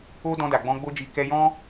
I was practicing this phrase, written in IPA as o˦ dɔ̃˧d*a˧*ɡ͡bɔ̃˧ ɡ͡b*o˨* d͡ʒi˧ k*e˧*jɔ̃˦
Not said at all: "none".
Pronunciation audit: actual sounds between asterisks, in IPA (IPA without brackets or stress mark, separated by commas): a˨, o˦, ɛ˧